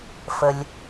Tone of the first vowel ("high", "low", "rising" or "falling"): low